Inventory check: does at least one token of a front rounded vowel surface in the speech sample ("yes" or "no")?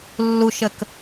no